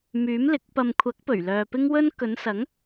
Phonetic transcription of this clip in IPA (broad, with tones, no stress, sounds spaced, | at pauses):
m yː˨˥ m l ɪ˨˥ k̚ p ɐ˨ m kʷʰ ɐ˨˥ k̚ p ɵ˨˩ ɥ l œː˨ p ɪ˥ ŋ w ɵ˥ n k ɵ˨˧ n s ɐ˨˥ ŋ